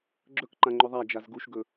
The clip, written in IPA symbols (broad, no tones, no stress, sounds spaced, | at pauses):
ɡ͡ǁ ɵ k ǃ ã ŋ͡ǃ ɵ ðˤ a d͡ʒ a z ɡ u ʃ ɡ ɵ